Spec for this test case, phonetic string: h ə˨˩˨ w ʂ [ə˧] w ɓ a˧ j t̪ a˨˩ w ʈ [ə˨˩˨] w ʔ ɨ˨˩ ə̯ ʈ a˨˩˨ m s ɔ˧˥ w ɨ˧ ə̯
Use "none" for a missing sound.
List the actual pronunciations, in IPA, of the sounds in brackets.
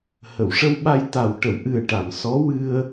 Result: ə˧, ə˨˩˨

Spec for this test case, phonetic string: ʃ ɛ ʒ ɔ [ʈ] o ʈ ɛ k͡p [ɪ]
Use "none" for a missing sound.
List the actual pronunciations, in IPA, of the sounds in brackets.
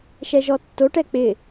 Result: tː, ɪ

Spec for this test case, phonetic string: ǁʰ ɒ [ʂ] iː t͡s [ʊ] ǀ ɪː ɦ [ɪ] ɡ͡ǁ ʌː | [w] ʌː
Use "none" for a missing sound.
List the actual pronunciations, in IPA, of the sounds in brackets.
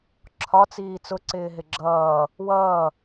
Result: t͡s, ʊ, ɪ, w

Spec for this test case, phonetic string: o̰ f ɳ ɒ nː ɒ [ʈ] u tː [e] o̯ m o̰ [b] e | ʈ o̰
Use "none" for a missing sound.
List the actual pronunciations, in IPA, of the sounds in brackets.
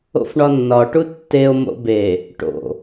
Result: ʈ, e, b

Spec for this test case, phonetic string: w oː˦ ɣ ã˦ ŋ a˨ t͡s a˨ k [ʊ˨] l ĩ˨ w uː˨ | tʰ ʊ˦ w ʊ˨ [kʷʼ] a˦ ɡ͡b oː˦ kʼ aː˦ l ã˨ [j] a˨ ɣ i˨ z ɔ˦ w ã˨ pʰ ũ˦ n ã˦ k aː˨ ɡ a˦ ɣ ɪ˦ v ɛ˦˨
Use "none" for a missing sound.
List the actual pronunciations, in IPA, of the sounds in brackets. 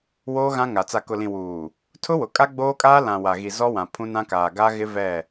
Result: ʊ˨, kʼ, w

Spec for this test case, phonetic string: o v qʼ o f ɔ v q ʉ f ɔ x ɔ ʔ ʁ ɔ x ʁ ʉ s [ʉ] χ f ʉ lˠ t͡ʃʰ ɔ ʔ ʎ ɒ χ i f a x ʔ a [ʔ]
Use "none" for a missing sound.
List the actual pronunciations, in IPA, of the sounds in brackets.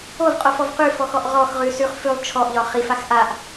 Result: ʉ, ʔ

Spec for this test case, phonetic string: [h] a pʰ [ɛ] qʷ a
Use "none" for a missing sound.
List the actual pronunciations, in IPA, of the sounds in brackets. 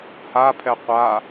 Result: h, ɛ

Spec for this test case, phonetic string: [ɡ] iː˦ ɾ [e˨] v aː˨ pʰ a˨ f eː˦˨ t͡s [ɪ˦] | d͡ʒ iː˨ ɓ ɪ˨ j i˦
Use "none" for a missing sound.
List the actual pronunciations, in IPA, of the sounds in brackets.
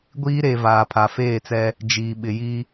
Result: ɡʷ, e˨, ɛ˦

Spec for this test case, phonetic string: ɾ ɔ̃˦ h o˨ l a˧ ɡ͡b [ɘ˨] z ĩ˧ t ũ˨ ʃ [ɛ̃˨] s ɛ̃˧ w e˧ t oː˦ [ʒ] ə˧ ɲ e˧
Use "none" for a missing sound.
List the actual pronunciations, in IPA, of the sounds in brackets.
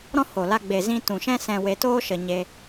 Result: e˨, ɛ̃˦, ʃ

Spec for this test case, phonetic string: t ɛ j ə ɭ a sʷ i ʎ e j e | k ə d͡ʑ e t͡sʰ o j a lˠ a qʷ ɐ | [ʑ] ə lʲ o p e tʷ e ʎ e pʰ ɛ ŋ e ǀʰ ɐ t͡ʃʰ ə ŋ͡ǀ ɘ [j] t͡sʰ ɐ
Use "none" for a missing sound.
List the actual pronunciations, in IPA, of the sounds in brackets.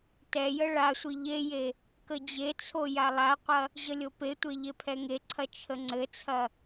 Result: ʑ, none

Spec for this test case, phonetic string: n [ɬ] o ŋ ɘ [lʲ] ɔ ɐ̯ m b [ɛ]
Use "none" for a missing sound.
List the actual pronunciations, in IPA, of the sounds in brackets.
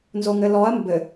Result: z, l, ɘ

